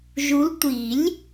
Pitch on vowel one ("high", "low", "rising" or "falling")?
rising